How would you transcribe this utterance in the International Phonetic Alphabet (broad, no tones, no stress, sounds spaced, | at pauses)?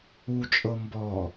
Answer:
u t͡ʃʼ ɤ m b ɔ